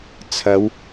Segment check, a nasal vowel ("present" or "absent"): absent